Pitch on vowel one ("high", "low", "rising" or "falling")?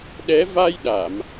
rising